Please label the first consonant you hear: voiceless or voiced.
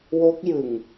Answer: voiced